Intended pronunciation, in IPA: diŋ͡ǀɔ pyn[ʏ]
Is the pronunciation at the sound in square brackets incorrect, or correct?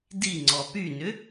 correct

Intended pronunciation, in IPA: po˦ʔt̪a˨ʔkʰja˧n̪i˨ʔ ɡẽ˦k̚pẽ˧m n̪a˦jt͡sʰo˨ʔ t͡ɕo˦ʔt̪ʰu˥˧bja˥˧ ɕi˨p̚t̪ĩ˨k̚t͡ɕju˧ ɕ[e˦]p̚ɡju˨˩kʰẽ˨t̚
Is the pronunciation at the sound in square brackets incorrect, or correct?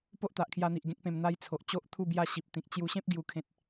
incorrect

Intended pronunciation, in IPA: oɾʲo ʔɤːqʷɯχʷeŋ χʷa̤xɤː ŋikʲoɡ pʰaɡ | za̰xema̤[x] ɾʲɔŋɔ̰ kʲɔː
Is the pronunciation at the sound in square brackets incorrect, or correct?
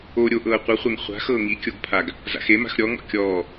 correct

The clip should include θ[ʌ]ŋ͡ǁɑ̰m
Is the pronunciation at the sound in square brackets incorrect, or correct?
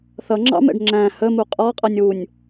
correct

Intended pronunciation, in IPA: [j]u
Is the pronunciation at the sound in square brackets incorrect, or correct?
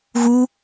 incorrect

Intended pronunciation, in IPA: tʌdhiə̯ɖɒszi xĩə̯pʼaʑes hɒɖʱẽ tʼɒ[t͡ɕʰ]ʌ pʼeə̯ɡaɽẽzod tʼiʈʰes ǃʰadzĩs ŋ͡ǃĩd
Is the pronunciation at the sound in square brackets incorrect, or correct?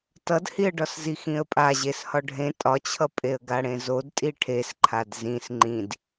correct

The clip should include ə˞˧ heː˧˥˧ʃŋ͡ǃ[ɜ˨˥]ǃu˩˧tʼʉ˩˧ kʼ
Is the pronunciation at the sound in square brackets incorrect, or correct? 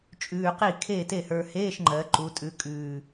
incorrect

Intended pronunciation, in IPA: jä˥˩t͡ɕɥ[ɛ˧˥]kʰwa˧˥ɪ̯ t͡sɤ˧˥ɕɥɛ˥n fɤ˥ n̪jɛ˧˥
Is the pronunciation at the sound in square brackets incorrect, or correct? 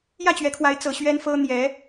correct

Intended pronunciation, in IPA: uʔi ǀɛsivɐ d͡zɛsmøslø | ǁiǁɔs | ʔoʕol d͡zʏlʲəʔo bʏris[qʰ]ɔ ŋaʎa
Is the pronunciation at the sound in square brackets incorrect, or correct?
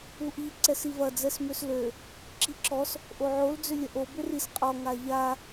incorrect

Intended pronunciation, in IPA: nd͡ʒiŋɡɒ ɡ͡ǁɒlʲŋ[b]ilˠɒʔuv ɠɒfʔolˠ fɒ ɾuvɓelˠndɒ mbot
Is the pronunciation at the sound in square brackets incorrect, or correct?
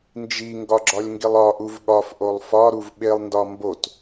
incorrect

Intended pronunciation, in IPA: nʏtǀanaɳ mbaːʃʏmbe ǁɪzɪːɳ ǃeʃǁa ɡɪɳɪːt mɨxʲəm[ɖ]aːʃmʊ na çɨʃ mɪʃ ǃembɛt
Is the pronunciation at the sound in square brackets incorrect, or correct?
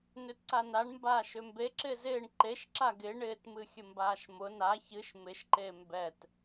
incorrect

